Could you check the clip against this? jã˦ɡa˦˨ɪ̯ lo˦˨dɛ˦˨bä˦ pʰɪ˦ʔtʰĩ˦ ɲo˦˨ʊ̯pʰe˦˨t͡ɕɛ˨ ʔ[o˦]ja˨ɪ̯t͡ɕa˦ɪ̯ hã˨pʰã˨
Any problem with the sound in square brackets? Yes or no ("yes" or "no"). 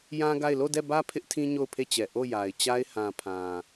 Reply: yes